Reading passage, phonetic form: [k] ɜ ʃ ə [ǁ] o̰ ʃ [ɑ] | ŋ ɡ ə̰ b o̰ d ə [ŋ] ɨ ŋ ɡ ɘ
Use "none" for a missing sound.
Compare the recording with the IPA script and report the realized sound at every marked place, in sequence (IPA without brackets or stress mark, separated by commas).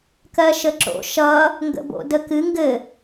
k, ǁ, ʌ, k